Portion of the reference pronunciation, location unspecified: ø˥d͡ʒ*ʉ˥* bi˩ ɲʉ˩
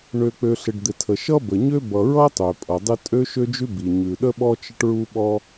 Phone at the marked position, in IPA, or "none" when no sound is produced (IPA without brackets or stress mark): ʉ˥